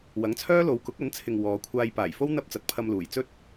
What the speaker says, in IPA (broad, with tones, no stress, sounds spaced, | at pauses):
w ɐ˨˥ ŋ t͡sʰ œː˥ l o˨˧ w k ʊ˨˥ k̚ ɐ˨˥ n t͡sʰ ɪ˨ ŋ w ɔː˨˧ kʷʰ aː˧ j p aː˨˩ j f o˥ w n̪ ɐ˥ p̚ t͡s ɐ˨˥ t̚ pʰ ɐ˧ m l uː˨˩ j t͡s ɵ˥ t̚